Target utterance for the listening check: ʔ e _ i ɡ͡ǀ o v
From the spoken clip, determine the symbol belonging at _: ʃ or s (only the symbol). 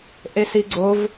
s